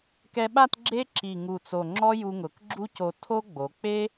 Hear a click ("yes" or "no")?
yes